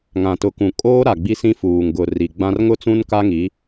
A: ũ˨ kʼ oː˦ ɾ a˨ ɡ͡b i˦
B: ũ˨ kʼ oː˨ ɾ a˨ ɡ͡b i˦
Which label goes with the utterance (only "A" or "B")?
A